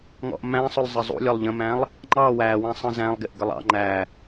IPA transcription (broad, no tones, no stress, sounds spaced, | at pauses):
ŋ ɔ̰ ʔ m æ̃ sˤ ʊ lˠ zˤ ə zˤ ṵ lʲ ɔ lˠ ʎ ə̃ m æ̃ lˠ | ŋ͡ǃ ɑ w æ w æ̃ sˤ ə̃ z æ̃ lˠ ɡ ɪ ʔ ɡ ə lˠ ɑ̰ ŋ͡ǃ æ